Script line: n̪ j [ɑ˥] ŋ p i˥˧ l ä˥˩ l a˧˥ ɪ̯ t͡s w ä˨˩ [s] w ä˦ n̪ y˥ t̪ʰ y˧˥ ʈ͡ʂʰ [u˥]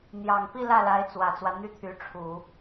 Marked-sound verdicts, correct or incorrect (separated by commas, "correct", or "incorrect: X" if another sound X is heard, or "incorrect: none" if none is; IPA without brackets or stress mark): incorrect: ɑ˨˩, incorrect: t͡s, incorrect: u˨˩˦